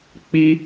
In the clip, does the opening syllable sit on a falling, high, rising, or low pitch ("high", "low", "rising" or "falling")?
high